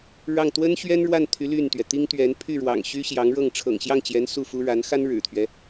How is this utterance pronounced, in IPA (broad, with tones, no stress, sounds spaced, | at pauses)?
ɻ ɑ˥˩ ŋ t̪ w ə˥ n ɕ ɥ ɛ˥ n ɻ w a˥˩ n t̪ʰ y˧˥ l y˥˩ n t̪ ɥ ɛ˩ t̪ i˥ ŋ t̪ ɥ ɛ˧˥ n pʰ y˥˩ ɻ w ɑ̰˨˩ ŋ ɕ y˥ ɕ j ɑ˧˥ ŋ ɻ ɤ˥˩ ŋ ʈ͡ʂʰ ɤ̰˨˩ ŋ ɕ j ɑ˥˩ ŋ t͡ɕ j ɛ˧˥ n s u˥˩ f u˥ ɻ a˧˥ n x a˥ n ɻ ɻ̩˨˩ t̪ʰ ɥ ɛ˦